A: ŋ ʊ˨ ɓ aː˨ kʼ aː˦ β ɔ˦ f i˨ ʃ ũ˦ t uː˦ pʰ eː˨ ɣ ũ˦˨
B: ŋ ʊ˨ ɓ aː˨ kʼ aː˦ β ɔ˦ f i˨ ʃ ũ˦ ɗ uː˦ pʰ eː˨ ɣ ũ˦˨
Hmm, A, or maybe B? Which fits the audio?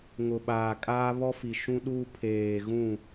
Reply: B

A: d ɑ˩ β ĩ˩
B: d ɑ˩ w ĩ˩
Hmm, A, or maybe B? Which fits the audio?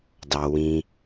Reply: B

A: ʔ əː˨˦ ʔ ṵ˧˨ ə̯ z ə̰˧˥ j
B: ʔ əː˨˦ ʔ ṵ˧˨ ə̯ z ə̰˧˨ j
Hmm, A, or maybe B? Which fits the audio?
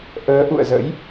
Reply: A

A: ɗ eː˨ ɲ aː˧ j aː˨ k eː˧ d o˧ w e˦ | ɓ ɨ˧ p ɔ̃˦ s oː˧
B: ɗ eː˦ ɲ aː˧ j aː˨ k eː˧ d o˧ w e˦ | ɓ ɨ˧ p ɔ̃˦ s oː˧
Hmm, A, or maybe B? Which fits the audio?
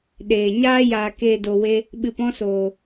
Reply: A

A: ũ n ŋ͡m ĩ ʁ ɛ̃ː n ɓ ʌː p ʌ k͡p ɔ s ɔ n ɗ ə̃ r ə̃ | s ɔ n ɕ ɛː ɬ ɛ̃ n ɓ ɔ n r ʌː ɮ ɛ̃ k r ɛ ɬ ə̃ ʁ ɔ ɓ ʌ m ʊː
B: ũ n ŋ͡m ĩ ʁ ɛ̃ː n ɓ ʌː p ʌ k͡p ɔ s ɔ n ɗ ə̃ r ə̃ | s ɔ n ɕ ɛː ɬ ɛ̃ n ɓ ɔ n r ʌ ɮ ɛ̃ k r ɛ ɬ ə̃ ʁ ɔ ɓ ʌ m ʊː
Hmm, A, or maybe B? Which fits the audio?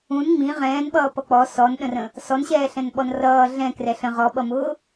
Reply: A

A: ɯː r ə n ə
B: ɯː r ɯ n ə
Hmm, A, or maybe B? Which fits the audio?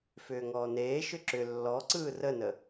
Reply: A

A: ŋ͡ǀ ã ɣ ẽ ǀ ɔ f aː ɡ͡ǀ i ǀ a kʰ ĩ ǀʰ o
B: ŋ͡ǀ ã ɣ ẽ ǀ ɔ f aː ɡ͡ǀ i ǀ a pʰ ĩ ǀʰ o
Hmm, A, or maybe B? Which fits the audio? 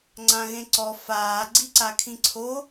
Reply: A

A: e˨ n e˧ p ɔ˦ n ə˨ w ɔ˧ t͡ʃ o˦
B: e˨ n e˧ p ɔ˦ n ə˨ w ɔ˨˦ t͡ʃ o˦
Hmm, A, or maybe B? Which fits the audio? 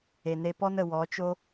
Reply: B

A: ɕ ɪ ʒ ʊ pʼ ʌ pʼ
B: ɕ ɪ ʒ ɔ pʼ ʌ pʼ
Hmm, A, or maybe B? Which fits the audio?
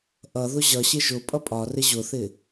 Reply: A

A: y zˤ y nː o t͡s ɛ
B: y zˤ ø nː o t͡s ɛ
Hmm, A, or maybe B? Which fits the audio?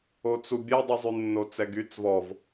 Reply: A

